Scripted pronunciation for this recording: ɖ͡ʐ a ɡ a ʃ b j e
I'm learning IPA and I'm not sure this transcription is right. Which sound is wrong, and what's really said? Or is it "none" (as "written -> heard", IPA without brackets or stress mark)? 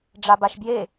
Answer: ɡ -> b